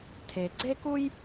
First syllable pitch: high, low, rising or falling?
low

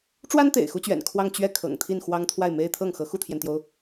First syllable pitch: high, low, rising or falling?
high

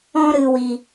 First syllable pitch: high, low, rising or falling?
high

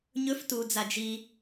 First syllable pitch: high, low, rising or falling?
rising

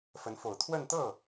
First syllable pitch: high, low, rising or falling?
rising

